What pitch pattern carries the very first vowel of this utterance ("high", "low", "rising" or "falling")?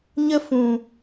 high